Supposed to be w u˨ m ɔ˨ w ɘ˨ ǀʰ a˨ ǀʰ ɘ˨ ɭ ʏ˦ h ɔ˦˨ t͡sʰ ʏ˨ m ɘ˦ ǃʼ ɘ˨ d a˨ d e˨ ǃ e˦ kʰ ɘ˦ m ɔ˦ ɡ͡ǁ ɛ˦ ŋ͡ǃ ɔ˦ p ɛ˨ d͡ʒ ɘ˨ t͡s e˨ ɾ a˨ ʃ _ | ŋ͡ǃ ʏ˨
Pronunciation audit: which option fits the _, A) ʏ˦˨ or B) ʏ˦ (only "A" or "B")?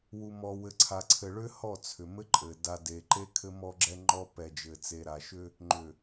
B